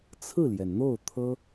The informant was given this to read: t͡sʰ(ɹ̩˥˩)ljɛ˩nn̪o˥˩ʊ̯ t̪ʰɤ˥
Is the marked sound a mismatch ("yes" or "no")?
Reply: no